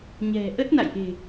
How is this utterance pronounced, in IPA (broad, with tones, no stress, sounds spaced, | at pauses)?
ɲ ɛ̤˨˩ ʔ ə˦˥ t̚ n a̰˧˨ j ʔ e̤˨˩